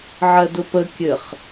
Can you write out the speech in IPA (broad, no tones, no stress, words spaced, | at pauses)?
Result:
ʕɜdʊpə kʲɘχ